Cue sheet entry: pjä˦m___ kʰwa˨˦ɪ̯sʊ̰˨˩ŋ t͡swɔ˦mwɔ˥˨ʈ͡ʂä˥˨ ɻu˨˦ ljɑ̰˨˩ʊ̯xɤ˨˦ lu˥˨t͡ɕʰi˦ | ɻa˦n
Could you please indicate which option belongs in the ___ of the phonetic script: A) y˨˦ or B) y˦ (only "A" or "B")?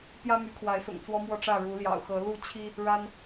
A